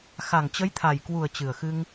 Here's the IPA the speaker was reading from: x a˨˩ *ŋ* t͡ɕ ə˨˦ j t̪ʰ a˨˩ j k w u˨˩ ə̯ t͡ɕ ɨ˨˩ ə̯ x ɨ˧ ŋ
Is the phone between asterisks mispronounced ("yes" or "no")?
no